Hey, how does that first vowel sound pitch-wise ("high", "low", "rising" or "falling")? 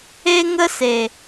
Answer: high